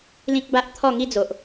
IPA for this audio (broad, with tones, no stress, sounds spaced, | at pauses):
l ĩ˦ k̚ b a˦ ʔ t̪ʰ ɔ˥˧ ŋ i˦ d͡z o˨ ʔ